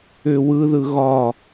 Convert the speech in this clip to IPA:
ʏ wɯðɯ ɣɒ

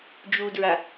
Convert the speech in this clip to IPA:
d͡ʒudɹa

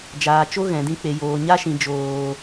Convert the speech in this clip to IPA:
d͡ʒaː˨t͡ʃo˦ ɣɛ̃˨dĩ˧k͡pe˨ joː˨ ɲa˦ʃĩ˨ d͡ʒoː˨

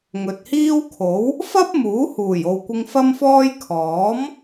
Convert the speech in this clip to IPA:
ŋɵ˨t̚hiː˥wkʰo˨˥w | fɐ˥p̚ muː˨˥huː˨˩jo˨wkʷɪ˧ŋ fɐ˥mfɔː˥j kʰɔː˨˥m

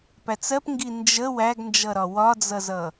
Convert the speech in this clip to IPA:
pæt͡sɜpŋɡi nd͡ʒə wæɡnd͡ʒʌɾɒ wɒd͡zʌzʌ

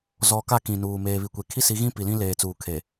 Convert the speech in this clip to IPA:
zɔ˨ka˦˨ kĩ˨nuː˨ meː˨βi˨kʷe˨ kʰi˦si˨˦ɣĩ˦ pi˨lĩ˦leː˨t͡suː˨ kʰe˨

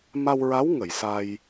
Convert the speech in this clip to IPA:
ma˧wɹa˧˥w ŋə˨˩˨jsa˧j

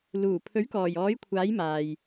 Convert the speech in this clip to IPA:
luː˨˩ pʰɵ˨˥ɥ kɔː˨˩jɔː˨˥jkʷʰaː˨˥j maː˨j

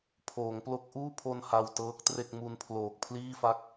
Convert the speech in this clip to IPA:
pʰoː˩˦ŋplo˦˥k̚ʔuː˥˩pʰo˧n ha˧wtɤː˦˥k̚tre˥˩k̚mu˦˥n pʰloː˨˩k̚pʰliː˥˩fa˥˩k̚

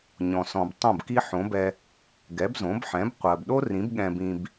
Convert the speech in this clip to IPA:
ɲɔ̃˩sɔ̃˩b tˤõ˥˩bki˥ ħõ˩˥bɛ˧ | ɡɛ˩˥bzõ˩˥bħɛ̃˩˥b qʷɜ˩bɗo˥rĩ˩˥b ɠɛ̃˧bĩ˧b

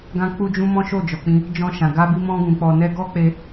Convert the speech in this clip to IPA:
ɡã˧k͡pu˧d͡ʒũ˧ mɔ̃˦ʃo˦˨ d͡ʒɔ˨k͡pĩ˧ | d͡ʒɔ̃˧ʃã˨ɡa˧bi˧ mɔ̃˧ɡũ˨k͡pɔ˨nɛ˧ ɡɔ˦k͡pe˧

